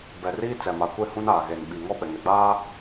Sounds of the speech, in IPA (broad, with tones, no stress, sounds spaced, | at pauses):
b ɛ˨ r iː˦ t͡s ɛ˨ m a˨ kʷ e˦ h ũ˦ n aː˨ ɣ e˨ n ɓ i˨ ŋ ɔ˦ ɓ ɛ˨ ŋ ɛ˨ ɡ͡b aː˦